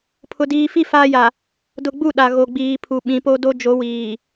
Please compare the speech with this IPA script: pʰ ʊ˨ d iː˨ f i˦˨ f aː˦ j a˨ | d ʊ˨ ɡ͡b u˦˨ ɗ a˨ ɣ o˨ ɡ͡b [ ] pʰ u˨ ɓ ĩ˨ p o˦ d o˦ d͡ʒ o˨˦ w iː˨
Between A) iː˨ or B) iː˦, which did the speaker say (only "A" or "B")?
A